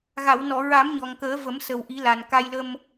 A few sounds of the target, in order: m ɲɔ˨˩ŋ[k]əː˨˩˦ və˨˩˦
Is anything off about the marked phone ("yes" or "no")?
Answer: no